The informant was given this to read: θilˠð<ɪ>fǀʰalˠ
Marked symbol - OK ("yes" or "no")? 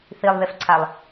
yes